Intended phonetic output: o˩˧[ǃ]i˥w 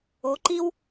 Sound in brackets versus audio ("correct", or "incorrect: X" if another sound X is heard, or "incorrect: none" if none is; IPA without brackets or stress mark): correct